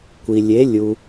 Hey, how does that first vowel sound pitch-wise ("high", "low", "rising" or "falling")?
low